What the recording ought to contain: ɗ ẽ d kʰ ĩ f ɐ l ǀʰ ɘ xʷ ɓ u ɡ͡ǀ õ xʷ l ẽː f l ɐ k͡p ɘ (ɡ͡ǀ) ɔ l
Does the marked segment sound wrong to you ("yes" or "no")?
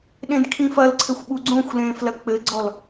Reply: no